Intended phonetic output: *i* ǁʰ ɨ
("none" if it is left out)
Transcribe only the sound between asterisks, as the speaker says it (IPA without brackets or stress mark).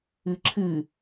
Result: ɨ